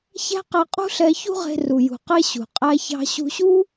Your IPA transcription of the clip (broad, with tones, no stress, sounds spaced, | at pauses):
ç æ̤˥ q ɛ˧ qʼ ṳ˥ ɬ ɛ˧ ç ṳ˥ ʁ e̤˧ r u˩ j ṳ˩ q e˧ ɕ ṳ˩ qʼ æ˧ ç ɑ̤˧ ɕ ṳ˧ ɕ u˥